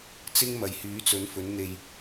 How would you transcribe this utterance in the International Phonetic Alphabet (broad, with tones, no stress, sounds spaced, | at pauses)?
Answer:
t͡s ɪ˥ ŋ m ɐ˨ j h yː˨˥ t͡s ɵ˨˥ n f ɵ˨˥ n n̪ e˧ j